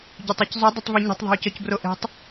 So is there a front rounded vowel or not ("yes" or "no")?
yes